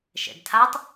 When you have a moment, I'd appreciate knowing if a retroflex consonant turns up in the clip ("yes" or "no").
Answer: no